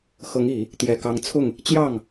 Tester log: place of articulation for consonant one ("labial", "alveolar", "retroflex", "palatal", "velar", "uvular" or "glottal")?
velar